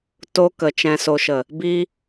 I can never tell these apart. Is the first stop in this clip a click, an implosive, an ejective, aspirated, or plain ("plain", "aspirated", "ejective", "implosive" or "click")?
plain